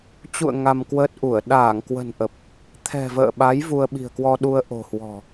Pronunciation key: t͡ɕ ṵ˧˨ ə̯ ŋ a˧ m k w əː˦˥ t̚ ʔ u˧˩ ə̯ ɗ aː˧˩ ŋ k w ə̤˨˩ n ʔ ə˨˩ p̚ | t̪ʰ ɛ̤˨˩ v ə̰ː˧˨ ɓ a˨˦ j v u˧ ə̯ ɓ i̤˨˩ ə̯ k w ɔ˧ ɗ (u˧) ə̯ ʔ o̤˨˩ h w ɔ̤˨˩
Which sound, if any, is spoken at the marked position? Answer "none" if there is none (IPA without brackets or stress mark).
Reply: u˧